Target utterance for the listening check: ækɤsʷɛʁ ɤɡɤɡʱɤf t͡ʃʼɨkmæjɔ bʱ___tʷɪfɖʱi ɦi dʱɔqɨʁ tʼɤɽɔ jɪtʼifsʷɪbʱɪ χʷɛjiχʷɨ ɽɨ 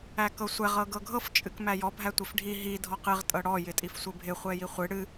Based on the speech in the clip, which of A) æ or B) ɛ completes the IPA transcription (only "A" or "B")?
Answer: A